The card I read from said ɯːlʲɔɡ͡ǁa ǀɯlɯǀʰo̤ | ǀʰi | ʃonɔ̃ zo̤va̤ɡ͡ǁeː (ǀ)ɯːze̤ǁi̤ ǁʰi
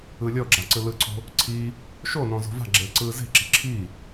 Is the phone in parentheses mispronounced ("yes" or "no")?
no